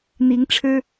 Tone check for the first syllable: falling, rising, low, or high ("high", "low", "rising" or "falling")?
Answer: rising